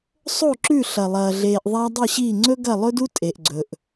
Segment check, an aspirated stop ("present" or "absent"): absent